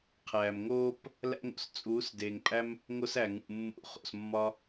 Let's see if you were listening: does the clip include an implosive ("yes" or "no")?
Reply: no